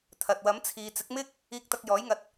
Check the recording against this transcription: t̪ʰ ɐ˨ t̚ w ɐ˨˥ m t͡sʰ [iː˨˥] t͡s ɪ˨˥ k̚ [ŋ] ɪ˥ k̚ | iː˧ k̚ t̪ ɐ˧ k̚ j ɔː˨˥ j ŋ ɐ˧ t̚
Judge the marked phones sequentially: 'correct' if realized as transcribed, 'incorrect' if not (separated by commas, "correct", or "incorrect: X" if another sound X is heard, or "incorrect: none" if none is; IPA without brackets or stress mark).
incorrect: iː˨˧, incorrect: m